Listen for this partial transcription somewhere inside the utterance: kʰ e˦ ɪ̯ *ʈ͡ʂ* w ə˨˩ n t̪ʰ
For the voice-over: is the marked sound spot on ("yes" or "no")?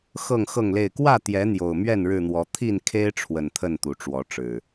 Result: no